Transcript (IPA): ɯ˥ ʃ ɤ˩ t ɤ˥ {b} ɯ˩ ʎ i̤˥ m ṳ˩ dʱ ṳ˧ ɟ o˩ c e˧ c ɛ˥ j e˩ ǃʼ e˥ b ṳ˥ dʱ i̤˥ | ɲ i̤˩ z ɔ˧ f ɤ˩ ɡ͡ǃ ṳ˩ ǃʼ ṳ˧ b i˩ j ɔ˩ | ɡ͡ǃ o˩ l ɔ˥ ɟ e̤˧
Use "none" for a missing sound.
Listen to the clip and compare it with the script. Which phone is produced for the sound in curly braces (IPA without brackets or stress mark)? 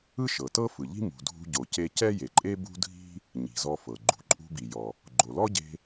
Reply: f